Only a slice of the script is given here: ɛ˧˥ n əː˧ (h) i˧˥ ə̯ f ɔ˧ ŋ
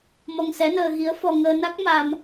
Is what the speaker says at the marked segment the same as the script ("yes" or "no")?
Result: no